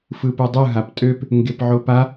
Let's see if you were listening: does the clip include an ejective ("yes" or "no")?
yes